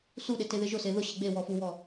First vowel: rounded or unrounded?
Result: rounded